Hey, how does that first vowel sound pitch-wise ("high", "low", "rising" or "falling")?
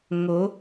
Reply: rising